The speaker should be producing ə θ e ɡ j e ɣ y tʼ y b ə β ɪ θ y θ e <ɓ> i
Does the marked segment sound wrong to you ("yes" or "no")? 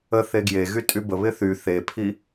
yes